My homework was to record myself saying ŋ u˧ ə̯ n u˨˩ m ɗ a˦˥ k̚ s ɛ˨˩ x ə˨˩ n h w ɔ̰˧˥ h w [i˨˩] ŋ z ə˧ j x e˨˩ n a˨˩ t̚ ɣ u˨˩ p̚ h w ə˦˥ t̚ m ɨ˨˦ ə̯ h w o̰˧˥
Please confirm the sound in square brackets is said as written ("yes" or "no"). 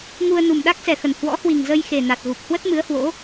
yes